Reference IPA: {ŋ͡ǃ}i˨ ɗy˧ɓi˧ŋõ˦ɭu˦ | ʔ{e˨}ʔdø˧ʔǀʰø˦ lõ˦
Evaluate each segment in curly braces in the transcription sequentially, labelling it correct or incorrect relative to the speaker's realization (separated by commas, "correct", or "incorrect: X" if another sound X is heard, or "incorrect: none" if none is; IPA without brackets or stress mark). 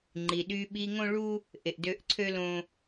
correct, correct